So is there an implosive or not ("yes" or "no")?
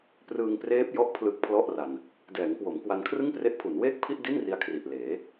no